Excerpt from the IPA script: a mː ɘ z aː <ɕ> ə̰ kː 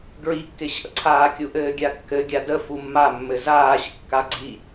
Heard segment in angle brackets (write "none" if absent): ɕ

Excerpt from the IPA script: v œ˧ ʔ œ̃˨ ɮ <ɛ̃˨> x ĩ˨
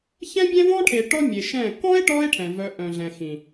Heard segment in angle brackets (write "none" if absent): ɛ̃˨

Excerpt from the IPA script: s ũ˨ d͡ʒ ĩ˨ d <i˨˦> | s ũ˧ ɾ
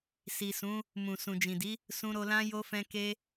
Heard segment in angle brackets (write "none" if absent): i˨˦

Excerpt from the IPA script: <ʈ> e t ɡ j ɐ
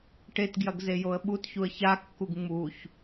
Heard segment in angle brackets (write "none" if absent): ʈ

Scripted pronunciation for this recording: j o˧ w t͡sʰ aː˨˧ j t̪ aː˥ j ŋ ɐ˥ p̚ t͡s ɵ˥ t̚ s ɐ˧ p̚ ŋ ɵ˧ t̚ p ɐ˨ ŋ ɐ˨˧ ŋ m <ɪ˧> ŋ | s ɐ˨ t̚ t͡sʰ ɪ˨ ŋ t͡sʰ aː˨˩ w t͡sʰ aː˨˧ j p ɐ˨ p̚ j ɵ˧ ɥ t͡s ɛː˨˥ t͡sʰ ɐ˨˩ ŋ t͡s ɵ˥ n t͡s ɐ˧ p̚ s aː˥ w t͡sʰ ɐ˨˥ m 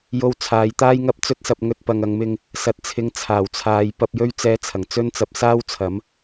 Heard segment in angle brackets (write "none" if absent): ɪ˧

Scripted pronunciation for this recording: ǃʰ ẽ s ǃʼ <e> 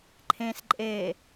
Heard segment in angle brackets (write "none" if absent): e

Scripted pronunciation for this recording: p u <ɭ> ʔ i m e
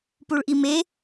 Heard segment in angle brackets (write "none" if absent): ɭ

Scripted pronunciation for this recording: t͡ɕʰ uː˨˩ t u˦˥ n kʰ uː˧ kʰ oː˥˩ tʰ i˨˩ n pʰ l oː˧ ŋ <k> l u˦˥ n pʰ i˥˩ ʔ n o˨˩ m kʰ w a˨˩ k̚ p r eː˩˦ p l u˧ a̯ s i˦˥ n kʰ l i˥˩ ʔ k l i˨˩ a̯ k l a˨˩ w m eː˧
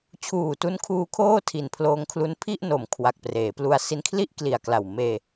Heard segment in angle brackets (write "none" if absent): kʰ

